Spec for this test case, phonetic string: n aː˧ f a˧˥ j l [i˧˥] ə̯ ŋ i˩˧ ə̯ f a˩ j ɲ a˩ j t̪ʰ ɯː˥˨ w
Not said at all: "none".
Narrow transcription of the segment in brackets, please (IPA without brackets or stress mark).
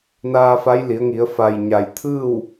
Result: i˩˧